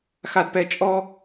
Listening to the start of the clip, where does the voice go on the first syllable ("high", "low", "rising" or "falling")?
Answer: low